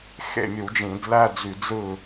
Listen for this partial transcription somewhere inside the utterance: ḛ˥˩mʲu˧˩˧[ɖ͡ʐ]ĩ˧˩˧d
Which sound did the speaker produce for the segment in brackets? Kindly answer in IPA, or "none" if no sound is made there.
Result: d͡ʒ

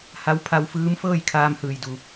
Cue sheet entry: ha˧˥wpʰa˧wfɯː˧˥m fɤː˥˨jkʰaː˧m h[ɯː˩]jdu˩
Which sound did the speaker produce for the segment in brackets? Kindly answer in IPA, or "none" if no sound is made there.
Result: ɯː˩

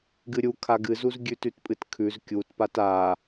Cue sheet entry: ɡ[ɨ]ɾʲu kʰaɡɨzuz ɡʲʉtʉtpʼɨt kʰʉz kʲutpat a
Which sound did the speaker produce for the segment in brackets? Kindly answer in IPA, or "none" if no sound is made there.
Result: ɨ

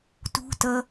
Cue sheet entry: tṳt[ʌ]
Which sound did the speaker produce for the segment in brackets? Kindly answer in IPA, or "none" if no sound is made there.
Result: ʌ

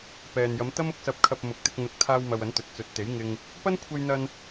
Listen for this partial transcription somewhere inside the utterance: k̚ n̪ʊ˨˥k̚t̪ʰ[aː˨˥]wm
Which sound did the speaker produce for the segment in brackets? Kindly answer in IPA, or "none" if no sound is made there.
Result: aː˧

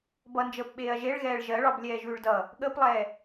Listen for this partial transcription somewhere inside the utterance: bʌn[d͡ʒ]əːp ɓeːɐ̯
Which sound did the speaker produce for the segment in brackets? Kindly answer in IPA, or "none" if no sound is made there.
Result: d͡ʒ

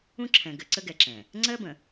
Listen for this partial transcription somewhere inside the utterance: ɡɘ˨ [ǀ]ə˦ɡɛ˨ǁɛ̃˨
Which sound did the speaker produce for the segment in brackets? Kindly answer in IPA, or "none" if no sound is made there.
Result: ǀ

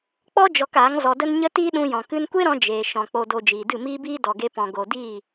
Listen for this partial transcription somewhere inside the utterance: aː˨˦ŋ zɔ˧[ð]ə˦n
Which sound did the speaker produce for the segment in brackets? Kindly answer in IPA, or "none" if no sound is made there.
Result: d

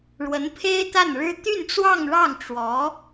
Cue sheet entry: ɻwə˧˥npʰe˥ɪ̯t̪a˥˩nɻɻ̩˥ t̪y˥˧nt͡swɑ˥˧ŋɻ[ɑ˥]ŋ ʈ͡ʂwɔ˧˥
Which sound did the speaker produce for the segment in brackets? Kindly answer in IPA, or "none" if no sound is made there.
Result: ɑ˥˩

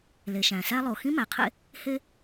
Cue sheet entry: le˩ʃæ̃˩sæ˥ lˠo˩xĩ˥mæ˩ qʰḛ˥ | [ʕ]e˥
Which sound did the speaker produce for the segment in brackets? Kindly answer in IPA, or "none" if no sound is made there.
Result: h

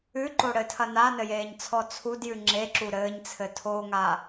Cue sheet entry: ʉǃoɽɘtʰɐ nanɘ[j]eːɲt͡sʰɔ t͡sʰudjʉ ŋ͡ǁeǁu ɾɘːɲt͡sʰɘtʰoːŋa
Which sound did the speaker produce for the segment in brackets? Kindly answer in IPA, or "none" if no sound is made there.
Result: j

